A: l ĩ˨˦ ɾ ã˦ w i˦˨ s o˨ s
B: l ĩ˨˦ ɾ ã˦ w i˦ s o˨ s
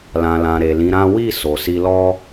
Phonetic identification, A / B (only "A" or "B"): A